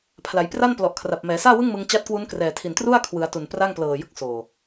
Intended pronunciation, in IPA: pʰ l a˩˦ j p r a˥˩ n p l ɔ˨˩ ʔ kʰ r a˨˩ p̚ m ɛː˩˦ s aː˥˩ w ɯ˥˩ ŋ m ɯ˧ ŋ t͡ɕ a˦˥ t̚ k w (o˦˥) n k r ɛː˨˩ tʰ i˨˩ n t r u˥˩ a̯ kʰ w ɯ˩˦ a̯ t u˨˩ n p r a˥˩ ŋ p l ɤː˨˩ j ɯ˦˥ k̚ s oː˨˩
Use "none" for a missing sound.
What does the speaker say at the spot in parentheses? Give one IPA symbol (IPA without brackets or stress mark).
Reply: u˦˥